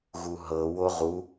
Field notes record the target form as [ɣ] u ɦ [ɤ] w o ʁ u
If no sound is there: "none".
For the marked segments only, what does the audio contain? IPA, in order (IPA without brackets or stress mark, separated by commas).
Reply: ɣ, ɤ